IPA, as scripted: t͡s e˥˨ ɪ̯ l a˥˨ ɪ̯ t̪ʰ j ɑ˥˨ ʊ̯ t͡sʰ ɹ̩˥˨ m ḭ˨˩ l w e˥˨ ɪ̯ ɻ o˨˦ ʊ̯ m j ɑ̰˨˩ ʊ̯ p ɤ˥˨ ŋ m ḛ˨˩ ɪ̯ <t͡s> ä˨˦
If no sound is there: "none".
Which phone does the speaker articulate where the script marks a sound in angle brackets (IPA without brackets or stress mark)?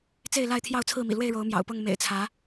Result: t͡sʰ